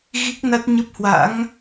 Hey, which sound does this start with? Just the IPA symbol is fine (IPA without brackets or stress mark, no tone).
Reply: ɣ